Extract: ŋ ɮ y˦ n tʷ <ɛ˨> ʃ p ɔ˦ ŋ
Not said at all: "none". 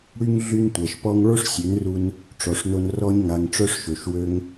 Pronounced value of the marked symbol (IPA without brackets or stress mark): ɛ˨